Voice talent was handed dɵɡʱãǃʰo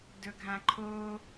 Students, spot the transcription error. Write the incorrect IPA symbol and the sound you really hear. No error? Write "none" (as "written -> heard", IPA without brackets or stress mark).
none